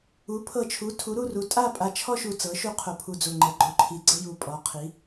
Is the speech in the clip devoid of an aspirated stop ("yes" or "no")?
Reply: no